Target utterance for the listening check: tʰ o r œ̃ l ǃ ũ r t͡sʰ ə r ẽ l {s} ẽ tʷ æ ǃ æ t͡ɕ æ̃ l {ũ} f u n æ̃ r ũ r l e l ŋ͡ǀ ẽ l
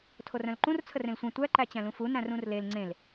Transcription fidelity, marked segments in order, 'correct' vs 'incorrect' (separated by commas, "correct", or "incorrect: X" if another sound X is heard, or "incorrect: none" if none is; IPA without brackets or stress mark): incorrect: sʷ, correct